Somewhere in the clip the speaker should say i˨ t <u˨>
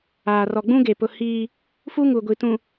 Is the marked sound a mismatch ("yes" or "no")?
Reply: yes